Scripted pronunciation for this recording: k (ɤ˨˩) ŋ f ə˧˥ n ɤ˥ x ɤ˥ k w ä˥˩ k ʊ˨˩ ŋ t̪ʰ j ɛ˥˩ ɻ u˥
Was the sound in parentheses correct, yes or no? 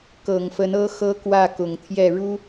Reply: yes